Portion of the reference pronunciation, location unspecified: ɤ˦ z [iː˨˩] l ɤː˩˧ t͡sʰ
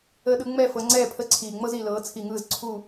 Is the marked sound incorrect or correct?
incorrect